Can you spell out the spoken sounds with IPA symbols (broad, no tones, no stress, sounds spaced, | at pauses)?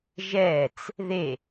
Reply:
ʒ ɛː t͡s | ð e